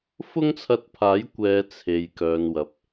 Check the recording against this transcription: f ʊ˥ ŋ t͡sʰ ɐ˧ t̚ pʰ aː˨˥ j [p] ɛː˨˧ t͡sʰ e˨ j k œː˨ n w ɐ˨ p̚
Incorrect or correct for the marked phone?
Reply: incorrect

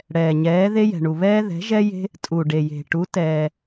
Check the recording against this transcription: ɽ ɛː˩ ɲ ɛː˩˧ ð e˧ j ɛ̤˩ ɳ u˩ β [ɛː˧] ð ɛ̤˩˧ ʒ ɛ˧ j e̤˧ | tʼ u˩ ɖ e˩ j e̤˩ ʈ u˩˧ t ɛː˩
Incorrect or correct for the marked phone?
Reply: correct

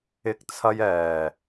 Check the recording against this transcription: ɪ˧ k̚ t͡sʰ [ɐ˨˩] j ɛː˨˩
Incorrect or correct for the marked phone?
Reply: incorrect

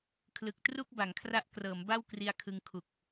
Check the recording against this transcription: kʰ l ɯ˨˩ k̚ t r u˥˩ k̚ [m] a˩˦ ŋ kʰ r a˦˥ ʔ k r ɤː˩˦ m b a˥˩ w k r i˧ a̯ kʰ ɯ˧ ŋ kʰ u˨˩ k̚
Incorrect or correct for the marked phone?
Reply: incorrect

